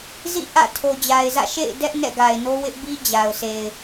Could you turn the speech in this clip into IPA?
z ḭ˦˨ ʔ ä̰˦˨ tʰ o˨ d͡ʑ a˨ ɪ̯ z ä̰˦˨ ʃ ḛ˦˨ ɪ̯ d ɛ˦ ʔ n ɛ̰˦˨ ɡ a˨ ɪ̯ n o˦ w ɪ˦ ʔ b i˦ d͡ʑ a˨ ʊ̯ sʰ e˨ ɪ̯

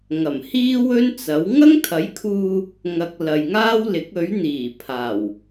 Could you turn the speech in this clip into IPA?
ŋ ɐ˨˩ m h iː˥ w ɵ˥ n t͡s ɐ˨˥ w ŋ ɐ˥ ŋ t̪ʰ ɐ˨˥ j kʰ uː˧ | ŋ ɐ˨ k̚ l ɐ˨ j ŋ aː˥ w l ɪ˨˥ k̚ ɵ˨˥ ɥ n̪ iː˨˩ pʰ aː˨˩ w

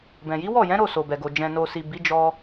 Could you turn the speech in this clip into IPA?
b ɛ̃˨ j i˨˦ w ɔ˦˨ j ɛ̃˨˦ ɾ o˦˨ s o˨ b ɛ˨ ɡ o˨ d͡ʒ ɛ̃˨ n o˨ s i˨ b i˨˦ d͡ʒ ɔ˧

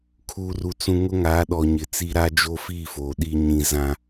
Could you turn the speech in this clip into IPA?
kʰ uː˦ r u˦ t͡s ũ˦ ŋ ʊ˦ ŋ a˨˦ ɗ ɔ˨ ɲ ɪ˨ t͡s i˦ ɾ a˦ d͡ʒ oː˦ f iː˦˨ f oː˨ ɗ iː˦ ɲ ĩ˦ z ã˦

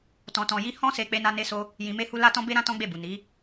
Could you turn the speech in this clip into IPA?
t ɔ̃˧ t ɔ̃˧ j i˦ h ɔ̃˦ s e˧ k͡p e˦ n a˦ n e˦ s o˦ | j ĩ˧ m e˦ h u˦ l a˦ t ɔ̃˦ b e˦ ɾ ã˦ t ɔ̃˦ ɡ͡b e˦˨ b u˨ n i˨˦

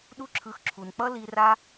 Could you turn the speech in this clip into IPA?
ɗ u˦ ǁʰ ɯ˧ x ǁʰ u˨ n k͡p ʌ˦ l i˧ r a˦

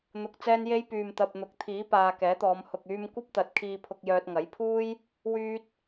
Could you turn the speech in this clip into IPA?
n̪ ʊ˨ k̚ t͡s ɛː˧ n j e˧ j p yː˨ m t̪ ɐ˨ p̚ n̪ ʊ˨˥ k̚ t̪ʰ iː˨˥ p aː˨ k ɛː˨˥ t̪ ɔː˨˧ m h ʊ˨ k̚ yː˧ m kʷ ɐ˥ p̚ t̪ ɐ˨˥ t̚ kʰ iː˧ pʰ ʊ˧ k̚ j œː˧ t̚ ŋ ɐ˨˥ j pʰ uː˥ j | w yː˧ t̚

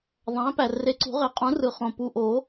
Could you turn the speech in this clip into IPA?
ðˤ æ̃˩˥ p æ˨˩ r e˨˩ ǀ ṳ˨˩˦ ʁ e˨˩˦ qʼ ũ˩˥ r ɯ˨˩ χ õ˨˩ p u˨˩ ʔ o˨˩˦

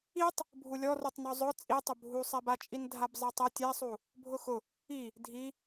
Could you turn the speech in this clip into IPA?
i tˤ | bʱ u lʲ ɔ r u tˤ n ɔ zˤ ʊ t͡sʼ i tˤ ʊ bʱ u sˤ ɛ b a t͡ʃʼ i n dʱ a b zˤ ɛ tˤ ɛ tʲ ɛ sˤ u | bʱ ʊ x ʊ | i | dʱ i

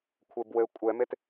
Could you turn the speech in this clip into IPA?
kʷʰ e b w ɘ kʷʼ ɛ m e t

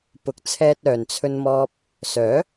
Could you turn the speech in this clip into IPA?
p ʊ˨ k̚ t͡sʰ ɛː˧ t̚ œː˨ n t͡sʰ ɵ˧ n m ɔː˧ p̚ | s œː˨˥

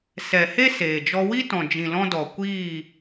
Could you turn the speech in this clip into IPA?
s ɛ˨ h e˦ s eː˨ d͡ʒ ɔ˧ w i˦ t ɔ̃˨ d͡ʒ ĩ˨ l ɔ̃˧ d ɔ˨ kʷ iː˦˨

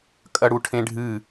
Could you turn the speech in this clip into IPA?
kʼ ɐ ɽ u ʈʰ ẽ ɖʱ ɨ

